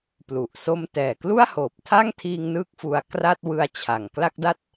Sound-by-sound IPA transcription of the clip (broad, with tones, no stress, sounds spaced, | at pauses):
p l u˨˩ ʔ s o˧ m t ɛː˨˩ k l u˥˩ a̯ h oː˨˩ p̚ tʰ a˥˩ ŋ tʰ iː˧ ŋ n ɯː˥˩ k̚ f u˧ a̯ k r a˥˩ t̚ w ɯ˧ a̯ t͡ɕʰ a˨˩ ŋ k l a˥˩ k̚ d a˥˩ t̚